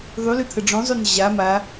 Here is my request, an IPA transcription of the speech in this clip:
ðˤ y l ø t̪ʰ ə ɖ͡ʐ õ zˤ ø n ʑ a m a

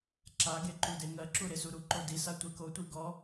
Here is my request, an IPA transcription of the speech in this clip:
ǁ a ɡ e ǃ u d e ŋ ɜ ǁ u ɾ e s u ɾ u ǃ o d i s a tʷ e k o tʷ i ɡ ɔ

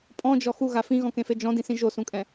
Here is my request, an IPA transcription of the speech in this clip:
pʼ ɔ̃ d͡ʒ ɔ x u ɣ a f ĩ ɣ ɔ̃ k ẽ f e d͡ʒ ɔ̃ d ĩ s ĩ ʒ o s ũ kʼ ɛ̃

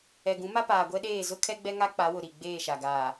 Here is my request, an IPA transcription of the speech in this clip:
ɛ˨ ɡ ũ˨˦ m a˦ p aː˨ ɡʷ ɛ˦ ɗ eː˦˨ z ʊ˦ kʰ ɛ˦ ɡ͡b ɛ˦ ŋ a˦ k͡p a˨˦ w ʊ˨ ɾ i˨ ɡ͡b eː˦˨ ʃ a˨ ɡ aː˨

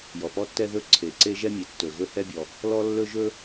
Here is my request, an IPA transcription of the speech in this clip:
j ɔ˩ p ɔ˥ tː ɛ˥ ð ɵ˥ ǀʰ e˩ ǀ e˥ ʒ ɛ˥ mʲ e˩ tː ɵ˩ ɣ ɵ˥ h ɛ˥ bʲ ɔ˩ | l ɔ˥ lː ɵ˥ ʒ ɵ˥

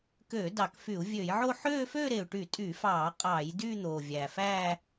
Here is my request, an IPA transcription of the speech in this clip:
k øː˧˩˧ d ɑ˧˩˧ k f y˧˩˧ u̯ vʲ ø˧˩˧ j ʕ o˥˧ ħ øː˥˧ f øː˥˧ ɾ eː˨˩ u̯ ʈ y˧˩˧ tʼ yː˧˩˧ f ɑː˧˩˧ qʼ ɑː˧˩˧ j d yː˥˧ n̪ oː˨˩ vʲ æ˨˩ f æː˥˧

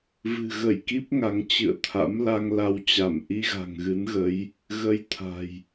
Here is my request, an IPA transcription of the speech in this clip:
v ɨ̤˨˩ ɣ ə˧˩ j k i˦˥ p̚ ŋ a˨˦ ŋ t͡ɕ ɨ̰˧˨ ə̯ t̪ʰ a̰˧˥ m l a˧ ŋ l a˧ w t͡ɕ a˧˩ m ʔ i˧ ɣ a̤˨˩ ŋ ɣ ɨ˨˦ n ɣ ə˨˦ j | ɣ ə˧ j t̪ʰ a̤˨˩ j

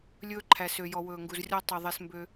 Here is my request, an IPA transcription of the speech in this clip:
lʲ ɵː˦ ǃʰ æ˨ s ø˨ j ɔ˨ w ɵː˨ ŋ ɡ u˨ z rʲ ɔ˦ tˤ y˨ ðˤ e˦ s m b ø˦

